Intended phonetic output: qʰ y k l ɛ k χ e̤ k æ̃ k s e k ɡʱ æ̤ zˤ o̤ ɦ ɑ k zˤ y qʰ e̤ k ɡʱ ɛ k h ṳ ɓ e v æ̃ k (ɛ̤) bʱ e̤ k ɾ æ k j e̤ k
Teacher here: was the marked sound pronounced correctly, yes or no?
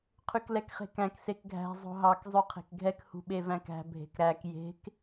no